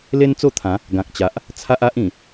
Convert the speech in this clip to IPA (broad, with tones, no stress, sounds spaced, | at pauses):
l e˦ n t͡s o˥˧ t̪ʰ ã˨˦ | ɡ ã˨ k̚ t͡ɕ a˨ ʔ | t͡sʰ a˦ ʔ a˦ ʔ ĩ˨˩